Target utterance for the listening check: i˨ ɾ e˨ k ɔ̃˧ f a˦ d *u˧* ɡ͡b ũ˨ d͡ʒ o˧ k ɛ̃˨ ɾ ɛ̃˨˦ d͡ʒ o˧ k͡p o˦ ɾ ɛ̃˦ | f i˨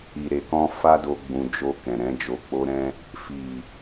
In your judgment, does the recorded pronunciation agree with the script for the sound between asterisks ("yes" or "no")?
no